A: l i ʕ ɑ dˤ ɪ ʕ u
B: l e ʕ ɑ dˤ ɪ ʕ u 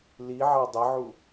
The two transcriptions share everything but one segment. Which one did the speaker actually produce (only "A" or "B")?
A